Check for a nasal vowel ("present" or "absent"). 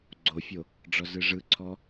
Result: absent